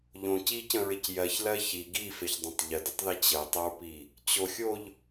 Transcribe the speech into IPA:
ʎ õ c i c ə̃ ɹ ɪ c j ɜ ç l ɜ ç i ɡ i f e ç dˤ ə̃ tˤ ʎ ə d ɪ tˤ ð e t͡ɕ ə tˤ ə ɹ p i | t͡ɕ o xʲ o ʎ

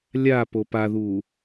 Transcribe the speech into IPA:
lʲ a p o p a ð u

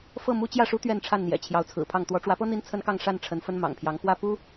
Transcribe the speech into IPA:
f ɤ˥˨ m u˦ t͡ɕ j ä˥˨ ʂ u˦ t̪ ɥ ɛ˥˨ n ʈ͡ʂʰ a˥˨ n n̪ j ɛ̰˨˩ t͡ɕʰ j ɑ˨˦ ʊ̯ t͡sʰ ɹ̩˨˩ pʰ ɑ˥˨ ŋ t̪ w ɔ˨˦ ʈ͡ʂ w ä˨˦ p ɤ˦ n̪ i˦ n t͡sʰ ə˦ n k ɑ˥˨ ŋ ʂ a˥˨ n ʈ͡ʂʰ ə˨˦ n f ə˦ n m ɑ̰˨˩ ŋ pʰ j ɑ˨˦ ŋ x w ä˥˨ p u˦

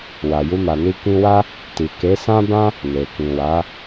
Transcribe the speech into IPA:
w a˨ j u˧ m a˨ n i˧ k ĩ˧ w a˦ | t i˨ k e˨˦ s ã˦ b ã˦ | n e˨ k ĩ˨ w a˨˦

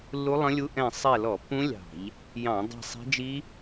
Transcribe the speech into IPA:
lː u˦˥ lˠ ə̃˦˥ lʲ u˦˥ ʔ ɛ̃˦˨ sˤ ɛ˦˨ l ɔ˧˩˧ pː ũ˦˥ lʲ ɑ̤˧˩˧ ʎ | j ɑ̃˧˩˧ dˤ ɛ̤˦˨ sˤ ɛ̤˦˥ d͡ʒ i˦˥

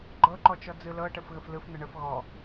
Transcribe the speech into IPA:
ɡ͡ǃ ɤ ǃ ɔ t͡ʃ ɔ d͡z ɯ l ɤ ʈ ə f ɣ ə f l ɯ f n̪ ə ɳ ə f ɣ ɔ

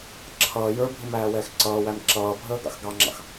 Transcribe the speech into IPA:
ǁʰ ʌː j ə˞ bʱ ɪ m æː w ɛː x ǀ ʌː w æ m ǁ ʌː bʱ əː ɡ ɑ̰ x ɡ ɑ ŋ͡ǁ ɑ̰ x

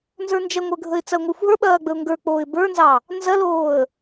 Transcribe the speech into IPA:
n z ə˞ n d͡ʒ ɐ ŋʷ ə˞ ɡʱ ə ɪ̯ t͡s ɐ ʊ̯ ŋʷ ə˞ xʷ ɦ ə˞ ɓ ɐː ɡ͡b ə ʊ̯ ŋ ɡ ə˞ k͡p oː ɪ̯ b ə˞ n z ɑ | n z ɐ l oː ə̯

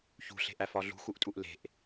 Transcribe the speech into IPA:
ç ṳ ɬ e̤ ʔ æ f ɒ ɮ ṳ x u ʔ tʼ u ʔ l e̤ ʔ

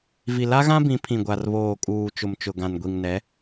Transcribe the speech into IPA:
v i˨ l a˦ ɣ ã˦ b ĩ˨˦ pʰ ĩ˨ ɡʷ a˨ r β oː˨ kʼ uː˨ t͡ʃ ʊ˨ m t͡ʃ ʊ˨ ɡ ã˨ n ɡʷ i˨ ŋ n ɛ˨˦

